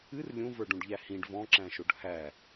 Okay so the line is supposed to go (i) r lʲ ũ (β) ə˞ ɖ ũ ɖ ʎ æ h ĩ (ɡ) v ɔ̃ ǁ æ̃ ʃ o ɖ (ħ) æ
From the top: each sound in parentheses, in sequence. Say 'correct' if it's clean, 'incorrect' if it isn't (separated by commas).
incorrect, incorrect, incorrect, incorrect